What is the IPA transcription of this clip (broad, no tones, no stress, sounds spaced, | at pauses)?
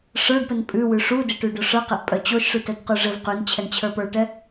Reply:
ʂ ə˞ ɖ p ɘ n pʼ ʉ w ʉ ʂ u d ɘ ʈ ʉ ɖ o ʂ ə˞ q ɘ ʔ pʼ œ t͡ɕ o ʃ ʂ ʉ t œ d q ʉ ʐ ɘ v q ʉ n t͡ɕʰ ɛ n t͡ɕʰ ə˞ p ə˞ ʈ ɛ